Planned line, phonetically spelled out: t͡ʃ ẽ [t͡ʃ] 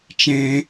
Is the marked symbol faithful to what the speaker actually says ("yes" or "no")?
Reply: no